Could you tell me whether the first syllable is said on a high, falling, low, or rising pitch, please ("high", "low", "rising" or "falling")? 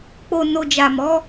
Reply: low